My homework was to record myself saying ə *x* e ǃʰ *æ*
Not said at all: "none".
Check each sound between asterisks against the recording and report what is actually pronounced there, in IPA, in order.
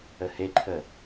h, ə

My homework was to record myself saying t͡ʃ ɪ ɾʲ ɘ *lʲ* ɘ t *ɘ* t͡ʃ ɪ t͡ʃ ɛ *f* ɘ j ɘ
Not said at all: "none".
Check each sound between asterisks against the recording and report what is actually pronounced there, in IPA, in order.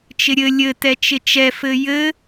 lʲ, ɛ, f

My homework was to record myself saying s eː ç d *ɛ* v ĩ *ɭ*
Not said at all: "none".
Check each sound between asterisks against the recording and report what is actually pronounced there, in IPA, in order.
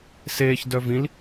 œ, l

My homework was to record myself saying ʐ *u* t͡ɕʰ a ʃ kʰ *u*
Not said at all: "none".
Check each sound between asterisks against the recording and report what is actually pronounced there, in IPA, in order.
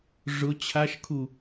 ʊ, u

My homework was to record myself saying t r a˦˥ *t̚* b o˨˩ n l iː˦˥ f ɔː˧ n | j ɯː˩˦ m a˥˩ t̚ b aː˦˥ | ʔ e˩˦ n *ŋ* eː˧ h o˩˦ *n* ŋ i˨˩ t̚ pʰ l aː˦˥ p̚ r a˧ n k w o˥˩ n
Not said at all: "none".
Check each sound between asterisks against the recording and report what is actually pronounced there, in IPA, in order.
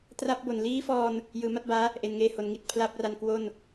p̚, ŋ, n

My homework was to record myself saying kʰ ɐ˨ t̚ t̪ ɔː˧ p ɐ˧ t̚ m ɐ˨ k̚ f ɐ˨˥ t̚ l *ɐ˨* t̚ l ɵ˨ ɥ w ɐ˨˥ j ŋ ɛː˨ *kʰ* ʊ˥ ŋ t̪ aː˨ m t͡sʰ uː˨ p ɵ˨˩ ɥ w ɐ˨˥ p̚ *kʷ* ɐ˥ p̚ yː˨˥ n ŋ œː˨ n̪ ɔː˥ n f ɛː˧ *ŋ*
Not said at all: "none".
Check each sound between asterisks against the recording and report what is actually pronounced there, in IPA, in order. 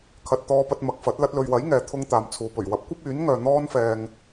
ɐ˧, t̪ʰ, kʷ, ŋ

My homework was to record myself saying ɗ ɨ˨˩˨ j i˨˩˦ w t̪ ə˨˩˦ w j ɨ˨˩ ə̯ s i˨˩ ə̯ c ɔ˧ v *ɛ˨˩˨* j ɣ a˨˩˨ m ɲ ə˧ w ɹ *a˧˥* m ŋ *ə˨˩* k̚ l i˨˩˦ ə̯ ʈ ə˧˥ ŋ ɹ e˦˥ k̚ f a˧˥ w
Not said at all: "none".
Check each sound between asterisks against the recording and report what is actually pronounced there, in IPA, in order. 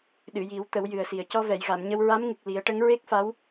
ɛ˨˩˨, a˧˥, ɨ˨˩

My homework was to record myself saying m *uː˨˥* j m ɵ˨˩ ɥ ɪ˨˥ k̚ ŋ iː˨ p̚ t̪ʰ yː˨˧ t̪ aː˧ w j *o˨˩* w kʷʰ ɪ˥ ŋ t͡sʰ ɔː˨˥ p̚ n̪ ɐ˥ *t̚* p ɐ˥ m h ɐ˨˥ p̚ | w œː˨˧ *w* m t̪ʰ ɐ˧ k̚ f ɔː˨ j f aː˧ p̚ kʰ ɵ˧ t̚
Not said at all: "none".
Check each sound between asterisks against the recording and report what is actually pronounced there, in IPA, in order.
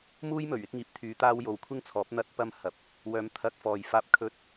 uː˥, o˨˧, t̚, none

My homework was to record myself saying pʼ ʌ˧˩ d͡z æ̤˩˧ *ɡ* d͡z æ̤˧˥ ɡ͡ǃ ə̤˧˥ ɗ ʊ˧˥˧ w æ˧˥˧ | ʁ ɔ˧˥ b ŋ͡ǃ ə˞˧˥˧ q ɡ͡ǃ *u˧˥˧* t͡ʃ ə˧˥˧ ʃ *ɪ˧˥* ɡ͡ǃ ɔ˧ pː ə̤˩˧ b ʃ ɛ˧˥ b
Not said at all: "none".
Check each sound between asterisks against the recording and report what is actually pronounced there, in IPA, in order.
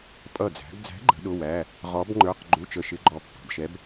ɡ, u˧˥˧, ɪ˧˥

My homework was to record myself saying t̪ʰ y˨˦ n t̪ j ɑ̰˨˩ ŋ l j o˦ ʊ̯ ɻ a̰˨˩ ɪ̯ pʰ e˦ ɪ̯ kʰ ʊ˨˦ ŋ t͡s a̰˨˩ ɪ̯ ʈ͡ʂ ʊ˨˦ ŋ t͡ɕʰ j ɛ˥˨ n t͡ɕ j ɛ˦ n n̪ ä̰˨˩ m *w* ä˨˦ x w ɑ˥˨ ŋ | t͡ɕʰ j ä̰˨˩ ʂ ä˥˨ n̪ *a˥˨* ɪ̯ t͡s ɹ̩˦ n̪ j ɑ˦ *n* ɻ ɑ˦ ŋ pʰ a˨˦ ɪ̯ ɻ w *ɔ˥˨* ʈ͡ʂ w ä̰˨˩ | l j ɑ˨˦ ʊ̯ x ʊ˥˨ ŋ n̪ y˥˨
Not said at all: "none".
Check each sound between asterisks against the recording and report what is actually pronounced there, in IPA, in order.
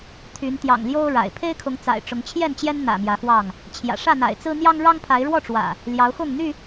j, a̰˨˩, ŋ, ɔ˥˨

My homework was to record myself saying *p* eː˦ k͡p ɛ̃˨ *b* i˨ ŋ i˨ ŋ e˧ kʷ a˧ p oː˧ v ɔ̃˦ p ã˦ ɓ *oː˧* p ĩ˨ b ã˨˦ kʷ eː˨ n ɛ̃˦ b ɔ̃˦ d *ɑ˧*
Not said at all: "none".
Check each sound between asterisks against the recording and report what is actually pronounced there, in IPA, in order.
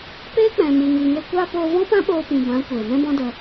p, m, oː˧, ə˧

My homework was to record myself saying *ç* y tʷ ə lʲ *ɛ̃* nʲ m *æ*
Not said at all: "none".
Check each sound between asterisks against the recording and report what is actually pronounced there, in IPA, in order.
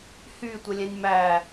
h, ɛ̃, æ

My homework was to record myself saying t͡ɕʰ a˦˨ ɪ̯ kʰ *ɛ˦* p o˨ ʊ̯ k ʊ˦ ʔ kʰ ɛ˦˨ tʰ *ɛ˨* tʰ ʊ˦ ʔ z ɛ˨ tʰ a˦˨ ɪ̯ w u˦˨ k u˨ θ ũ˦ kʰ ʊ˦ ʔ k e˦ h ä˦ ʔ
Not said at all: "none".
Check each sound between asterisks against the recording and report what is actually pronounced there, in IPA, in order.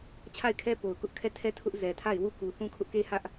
ɛ˦, ɛ˦

